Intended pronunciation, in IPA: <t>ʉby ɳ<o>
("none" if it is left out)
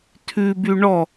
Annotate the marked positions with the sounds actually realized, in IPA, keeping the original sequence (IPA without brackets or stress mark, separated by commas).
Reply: tʰ, ɔ